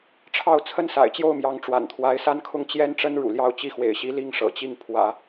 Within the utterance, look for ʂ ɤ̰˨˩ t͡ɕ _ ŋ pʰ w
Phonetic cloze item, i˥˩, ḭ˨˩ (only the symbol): i˥˩